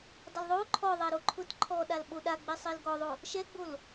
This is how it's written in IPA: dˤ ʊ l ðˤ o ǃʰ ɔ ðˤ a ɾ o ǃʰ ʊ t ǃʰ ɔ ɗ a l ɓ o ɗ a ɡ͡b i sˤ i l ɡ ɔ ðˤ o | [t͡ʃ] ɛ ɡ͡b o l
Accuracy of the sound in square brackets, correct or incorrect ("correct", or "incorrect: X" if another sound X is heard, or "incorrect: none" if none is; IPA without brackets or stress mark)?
incorrect: ʃ